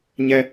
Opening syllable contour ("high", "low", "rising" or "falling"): high